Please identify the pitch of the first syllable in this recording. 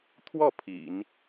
falling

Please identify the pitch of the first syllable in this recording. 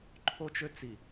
high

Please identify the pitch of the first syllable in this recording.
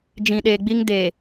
low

